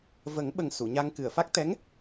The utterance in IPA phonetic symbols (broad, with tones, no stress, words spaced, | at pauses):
və˨˩˦ŋɓə˨˩ŋ su˨˩˨ɲa˧ŋ kɨ˨˩˨ə̯fa˦˥k̚ t̪ɛ˧˥ŋ